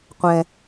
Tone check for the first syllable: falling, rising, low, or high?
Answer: low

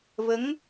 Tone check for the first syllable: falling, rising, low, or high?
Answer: rising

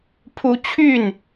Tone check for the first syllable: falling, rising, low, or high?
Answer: high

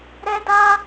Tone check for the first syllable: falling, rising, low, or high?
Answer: high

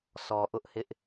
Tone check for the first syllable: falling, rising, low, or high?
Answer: low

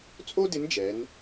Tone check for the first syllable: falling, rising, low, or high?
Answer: high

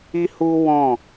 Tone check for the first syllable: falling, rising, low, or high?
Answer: high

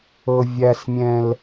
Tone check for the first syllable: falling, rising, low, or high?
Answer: low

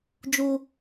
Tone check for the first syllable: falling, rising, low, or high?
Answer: high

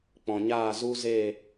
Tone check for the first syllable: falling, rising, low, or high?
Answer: low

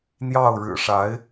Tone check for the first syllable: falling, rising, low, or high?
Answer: falling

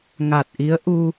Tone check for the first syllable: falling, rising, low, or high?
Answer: low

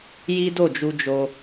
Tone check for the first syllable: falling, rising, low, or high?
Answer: high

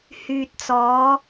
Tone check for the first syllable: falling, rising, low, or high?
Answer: low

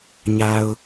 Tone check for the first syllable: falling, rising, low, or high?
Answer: low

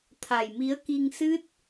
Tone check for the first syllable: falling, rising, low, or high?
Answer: low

